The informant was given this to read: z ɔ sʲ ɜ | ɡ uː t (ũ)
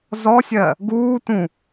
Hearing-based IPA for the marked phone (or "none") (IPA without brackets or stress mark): ũ